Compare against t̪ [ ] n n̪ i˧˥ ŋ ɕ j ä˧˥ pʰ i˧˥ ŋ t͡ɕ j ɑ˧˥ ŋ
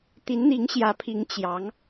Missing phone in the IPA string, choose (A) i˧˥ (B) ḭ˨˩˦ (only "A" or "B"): A